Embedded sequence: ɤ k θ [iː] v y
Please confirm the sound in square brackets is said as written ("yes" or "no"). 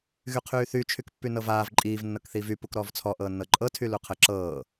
yes